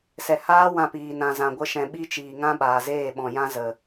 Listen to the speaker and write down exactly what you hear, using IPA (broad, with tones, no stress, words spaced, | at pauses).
sɛ˨haː˦ wã˧piː˨ nã˨zã˨ɡʷə˧ ʃɛ̃˨ɓi˦t͡ʃiː˨ŋã˦ ɓaː˨zeː˦˨ɓɔ̃˨jã˦ zə˨